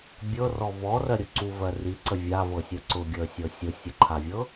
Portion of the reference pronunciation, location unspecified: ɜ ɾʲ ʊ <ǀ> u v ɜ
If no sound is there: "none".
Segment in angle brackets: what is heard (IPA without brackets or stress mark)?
ǀ